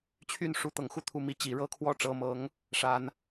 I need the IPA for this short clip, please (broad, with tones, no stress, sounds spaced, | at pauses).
t͡ɕʰ y˥˩ n ʂ u˧˥ t̪ ɤ˨˩ ŋ x u˥˧ t̪ʰ u˥˩ m i˧˥ t͡ɕ i˨˩ ɻ ɤ˥˧ kʰ w ɔ˥˩ ʈ͡ʂ ɤ˧˥ m ɤ˧˥ ŋ | ʂ a˧˥ n